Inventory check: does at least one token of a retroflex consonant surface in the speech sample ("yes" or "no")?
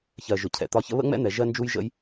no